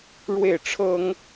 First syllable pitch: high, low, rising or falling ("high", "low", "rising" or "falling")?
falling